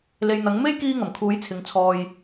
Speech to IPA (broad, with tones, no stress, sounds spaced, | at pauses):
l e˨ j n̪ ɐ˨˥ ŋ m e˥ j k iː˧ ŋ ɐ˨˩ m kʰ uː˨˥ j t͡sʰ ɪ˨ ŋ t͡sʰ ɔː˧ j